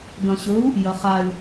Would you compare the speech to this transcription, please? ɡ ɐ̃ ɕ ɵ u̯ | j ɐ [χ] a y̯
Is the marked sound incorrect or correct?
correct